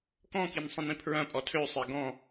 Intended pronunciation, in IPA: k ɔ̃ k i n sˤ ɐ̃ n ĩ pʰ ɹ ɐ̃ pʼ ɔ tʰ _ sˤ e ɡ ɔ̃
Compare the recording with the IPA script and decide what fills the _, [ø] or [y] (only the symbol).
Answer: ø